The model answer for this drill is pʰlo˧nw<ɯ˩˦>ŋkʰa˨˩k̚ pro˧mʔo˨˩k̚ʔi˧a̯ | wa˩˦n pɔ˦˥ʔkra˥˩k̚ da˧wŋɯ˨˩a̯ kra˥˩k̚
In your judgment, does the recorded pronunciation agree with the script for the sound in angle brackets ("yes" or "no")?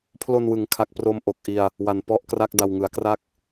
yes